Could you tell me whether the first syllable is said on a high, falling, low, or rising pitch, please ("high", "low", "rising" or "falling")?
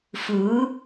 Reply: rising